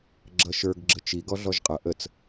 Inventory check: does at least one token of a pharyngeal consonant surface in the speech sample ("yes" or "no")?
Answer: no